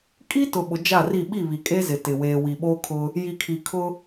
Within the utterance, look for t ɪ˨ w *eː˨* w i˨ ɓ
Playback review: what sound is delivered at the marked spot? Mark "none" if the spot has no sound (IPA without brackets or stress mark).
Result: eː˨